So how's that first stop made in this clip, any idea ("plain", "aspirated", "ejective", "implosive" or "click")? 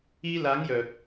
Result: plain